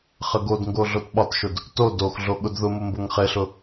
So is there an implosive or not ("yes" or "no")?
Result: yes